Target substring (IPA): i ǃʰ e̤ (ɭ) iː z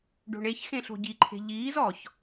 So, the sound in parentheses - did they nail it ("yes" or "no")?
no